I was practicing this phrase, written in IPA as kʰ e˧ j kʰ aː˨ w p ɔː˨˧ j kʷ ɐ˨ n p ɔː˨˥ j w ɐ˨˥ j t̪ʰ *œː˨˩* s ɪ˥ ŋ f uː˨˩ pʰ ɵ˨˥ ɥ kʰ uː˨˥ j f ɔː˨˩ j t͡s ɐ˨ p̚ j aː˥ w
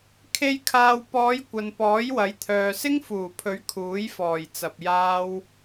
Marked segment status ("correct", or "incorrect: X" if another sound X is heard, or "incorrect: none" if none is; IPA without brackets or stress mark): incorrect: œː˨